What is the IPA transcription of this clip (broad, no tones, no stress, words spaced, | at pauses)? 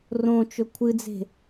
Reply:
rõt͡ʃɵ kʷʰɨd͡ze̤